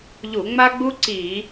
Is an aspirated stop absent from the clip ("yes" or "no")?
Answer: yes